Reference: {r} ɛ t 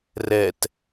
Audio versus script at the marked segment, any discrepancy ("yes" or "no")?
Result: no